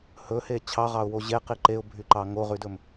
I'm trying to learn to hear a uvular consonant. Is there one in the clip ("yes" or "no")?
yes